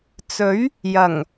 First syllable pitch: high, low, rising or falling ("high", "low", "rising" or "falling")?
rising